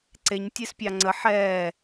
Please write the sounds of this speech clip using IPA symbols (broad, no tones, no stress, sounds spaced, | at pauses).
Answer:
ǀ e ɲ tʲ e s pʲ ɑ ŋ͡ǀ ə ħ ɛː